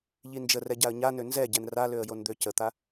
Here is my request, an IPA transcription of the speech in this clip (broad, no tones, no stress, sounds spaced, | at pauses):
ʎ i n d͡ʒ ə r ɛ ɟ a ə̯ ɲ a n ø n z ɛ ɟ ɛ n r a l ø ə̯ j o n d̪ ø c ə t̪ a